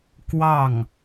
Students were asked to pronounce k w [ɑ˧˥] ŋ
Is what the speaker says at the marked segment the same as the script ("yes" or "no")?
no